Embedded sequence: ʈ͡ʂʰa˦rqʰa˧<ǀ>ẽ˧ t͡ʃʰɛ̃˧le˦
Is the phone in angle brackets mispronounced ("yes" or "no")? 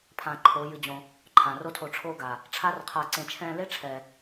no